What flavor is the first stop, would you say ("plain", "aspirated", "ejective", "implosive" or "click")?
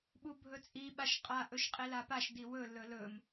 implosive